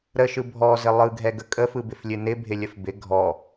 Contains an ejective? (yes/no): yes